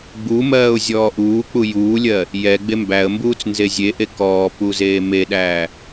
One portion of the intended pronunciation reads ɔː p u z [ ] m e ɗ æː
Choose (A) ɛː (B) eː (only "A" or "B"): B